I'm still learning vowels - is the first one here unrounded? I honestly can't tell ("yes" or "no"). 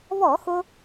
no